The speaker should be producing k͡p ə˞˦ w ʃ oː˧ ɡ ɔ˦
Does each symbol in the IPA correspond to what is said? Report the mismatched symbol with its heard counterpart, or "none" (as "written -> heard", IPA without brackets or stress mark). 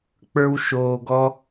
none